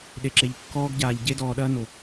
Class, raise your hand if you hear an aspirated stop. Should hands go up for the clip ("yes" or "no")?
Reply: no